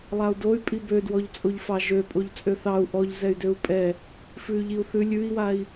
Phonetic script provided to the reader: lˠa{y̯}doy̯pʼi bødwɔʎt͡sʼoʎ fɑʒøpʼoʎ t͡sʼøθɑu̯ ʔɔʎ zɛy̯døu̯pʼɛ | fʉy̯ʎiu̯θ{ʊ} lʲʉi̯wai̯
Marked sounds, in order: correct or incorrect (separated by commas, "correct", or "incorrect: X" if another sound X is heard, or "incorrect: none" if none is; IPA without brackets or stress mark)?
incorrect: u̯, incorrect: ʉ